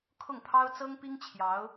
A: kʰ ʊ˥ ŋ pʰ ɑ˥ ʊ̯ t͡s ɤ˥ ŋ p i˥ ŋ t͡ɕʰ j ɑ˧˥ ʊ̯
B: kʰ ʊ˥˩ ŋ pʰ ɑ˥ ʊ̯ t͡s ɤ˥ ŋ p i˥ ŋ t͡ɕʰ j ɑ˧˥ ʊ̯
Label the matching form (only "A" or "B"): B